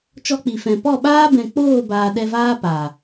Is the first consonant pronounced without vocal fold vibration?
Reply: yes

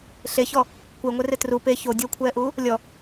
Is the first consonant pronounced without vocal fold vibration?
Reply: yes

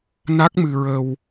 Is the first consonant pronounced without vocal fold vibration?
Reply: no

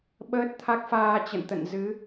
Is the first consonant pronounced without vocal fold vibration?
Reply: no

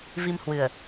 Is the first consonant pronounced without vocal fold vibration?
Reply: no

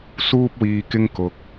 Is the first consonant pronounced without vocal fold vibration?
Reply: yes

